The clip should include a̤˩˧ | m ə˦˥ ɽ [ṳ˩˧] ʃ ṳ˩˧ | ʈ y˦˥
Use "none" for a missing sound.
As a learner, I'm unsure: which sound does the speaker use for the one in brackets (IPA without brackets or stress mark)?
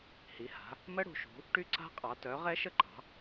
ṳ˩˧